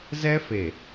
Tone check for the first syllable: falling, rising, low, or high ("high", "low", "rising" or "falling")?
high